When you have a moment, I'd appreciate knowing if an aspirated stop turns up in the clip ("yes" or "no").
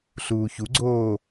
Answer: no